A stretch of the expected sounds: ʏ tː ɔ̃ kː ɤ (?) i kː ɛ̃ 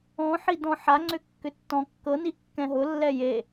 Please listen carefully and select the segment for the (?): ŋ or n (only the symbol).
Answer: n